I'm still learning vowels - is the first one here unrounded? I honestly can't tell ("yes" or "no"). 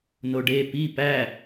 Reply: no